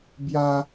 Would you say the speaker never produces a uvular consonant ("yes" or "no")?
yes